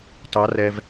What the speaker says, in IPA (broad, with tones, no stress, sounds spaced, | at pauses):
t ɑ˧˥ r ɛ˧ v